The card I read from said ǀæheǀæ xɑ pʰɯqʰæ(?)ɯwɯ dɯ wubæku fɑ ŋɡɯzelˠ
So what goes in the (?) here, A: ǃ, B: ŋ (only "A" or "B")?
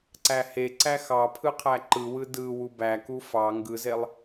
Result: A